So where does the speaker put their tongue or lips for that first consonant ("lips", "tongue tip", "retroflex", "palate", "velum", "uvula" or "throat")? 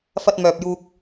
lips